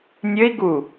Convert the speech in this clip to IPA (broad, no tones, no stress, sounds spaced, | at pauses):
nʲ ɘ i̯ ɡ u